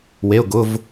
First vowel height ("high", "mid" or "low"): mid